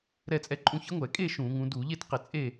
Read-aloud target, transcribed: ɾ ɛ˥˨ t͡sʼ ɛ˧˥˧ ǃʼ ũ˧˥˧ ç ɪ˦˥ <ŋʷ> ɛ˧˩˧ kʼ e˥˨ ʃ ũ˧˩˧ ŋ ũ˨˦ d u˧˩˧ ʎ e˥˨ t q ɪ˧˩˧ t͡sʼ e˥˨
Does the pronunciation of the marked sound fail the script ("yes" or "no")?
no